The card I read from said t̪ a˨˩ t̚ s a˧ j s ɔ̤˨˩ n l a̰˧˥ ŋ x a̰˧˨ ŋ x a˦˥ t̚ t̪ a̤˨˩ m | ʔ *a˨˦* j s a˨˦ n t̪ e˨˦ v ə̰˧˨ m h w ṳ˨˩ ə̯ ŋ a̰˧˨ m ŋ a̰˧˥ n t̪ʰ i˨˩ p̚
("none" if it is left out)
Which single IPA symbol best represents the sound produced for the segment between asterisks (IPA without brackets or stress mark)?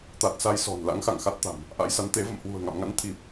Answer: a̰˧˥